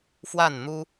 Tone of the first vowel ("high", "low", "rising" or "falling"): falling